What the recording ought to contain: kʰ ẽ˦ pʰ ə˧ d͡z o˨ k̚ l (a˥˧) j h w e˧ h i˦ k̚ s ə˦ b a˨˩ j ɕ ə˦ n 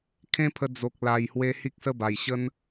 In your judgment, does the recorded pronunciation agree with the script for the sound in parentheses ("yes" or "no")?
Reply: no